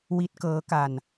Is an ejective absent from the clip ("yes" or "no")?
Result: yes